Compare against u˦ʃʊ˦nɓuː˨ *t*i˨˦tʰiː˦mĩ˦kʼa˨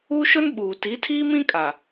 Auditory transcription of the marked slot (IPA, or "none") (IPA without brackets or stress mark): t